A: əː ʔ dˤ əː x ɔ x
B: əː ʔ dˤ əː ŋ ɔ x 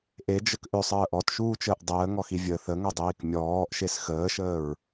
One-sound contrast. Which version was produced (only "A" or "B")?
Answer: B